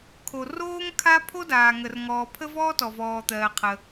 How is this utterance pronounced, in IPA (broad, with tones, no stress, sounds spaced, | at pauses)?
kʰ o˩ r oː˥ ŋ kʰ a˥ pʰ o˥ d aː˩ ŋ ə˩ r ŋ ɔː˩ pʰ ə˥ v ɔː˥ t ɔ˩ v ɔː˩ t̪ ɜː˩ qʰ ə˩